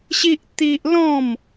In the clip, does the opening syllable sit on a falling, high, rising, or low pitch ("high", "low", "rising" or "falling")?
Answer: high